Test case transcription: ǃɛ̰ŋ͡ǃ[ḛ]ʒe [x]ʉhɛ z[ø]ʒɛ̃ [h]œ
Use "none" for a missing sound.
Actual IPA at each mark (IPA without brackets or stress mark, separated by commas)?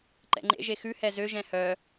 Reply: ḛ, x, ø, h